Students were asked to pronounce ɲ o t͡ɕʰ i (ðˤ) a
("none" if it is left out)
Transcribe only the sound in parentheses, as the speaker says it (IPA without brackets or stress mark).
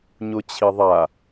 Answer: ðˤ